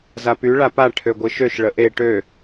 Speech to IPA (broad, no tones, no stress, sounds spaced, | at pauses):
z a p y ɭ a p a ʈʰ ø ɡʷ ɨ ʃ ø ʃ ɭ ə ʔ e ʈ ø